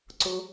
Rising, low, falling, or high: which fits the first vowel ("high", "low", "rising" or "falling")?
high